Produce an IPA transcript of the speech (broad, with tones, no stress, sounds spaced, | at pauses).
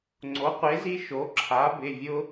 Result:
ŋ͡ǀ o˩˥ qʷ e˩˥ z i˦ ʃ o˩˥ ǁʰ a˩˥ b ɪ˩˧˩ vʲ ʊ˦